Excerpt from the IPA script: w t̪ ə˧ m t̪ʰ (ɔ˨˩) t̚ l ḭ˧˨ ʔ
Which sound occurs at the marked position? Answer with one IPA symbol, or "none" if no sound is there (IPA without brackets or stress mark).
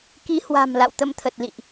ə˨˩